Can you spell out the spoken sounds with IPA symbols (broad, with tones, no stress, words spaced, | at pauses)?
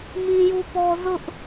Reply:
mĩ˦ju˦pɔ˦ zʊ˦ʔ